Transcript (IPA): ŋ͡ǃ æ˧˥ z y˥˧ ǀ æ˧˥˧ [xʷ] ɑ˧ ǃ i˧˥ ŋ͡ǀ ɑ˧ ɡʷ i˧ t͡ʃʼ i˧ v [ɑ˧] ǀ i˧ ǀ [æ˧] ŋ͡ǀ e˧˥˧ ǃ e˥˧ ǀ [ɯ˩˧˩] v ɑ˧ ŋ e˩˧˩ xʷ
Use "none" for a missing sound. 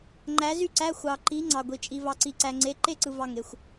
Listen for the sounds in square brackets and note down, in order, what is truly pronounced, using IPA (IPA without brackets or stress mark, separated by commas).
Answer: xʷ, ɑ˧, æ˧, ɯ˧